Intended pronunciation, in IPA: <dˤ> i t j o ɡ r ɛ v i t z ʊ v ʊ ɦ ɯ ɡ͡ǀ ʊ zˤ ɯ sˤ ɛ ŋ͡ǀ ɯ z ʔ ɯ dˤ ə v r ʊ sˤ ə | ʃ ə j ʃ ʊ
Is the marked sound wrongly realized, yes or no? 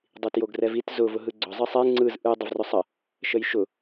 no